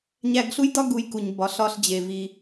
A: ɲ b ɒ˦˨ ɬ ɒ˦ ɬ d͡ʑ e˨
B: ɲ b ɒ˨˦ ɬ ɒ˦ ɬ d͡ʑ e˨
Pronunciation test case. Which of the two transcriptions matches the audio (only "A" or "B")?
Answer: B